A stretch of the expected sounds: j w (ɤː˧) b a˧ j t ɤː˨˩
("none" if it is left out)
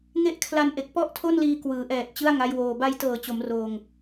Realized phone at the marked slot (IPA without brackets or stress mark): oː˧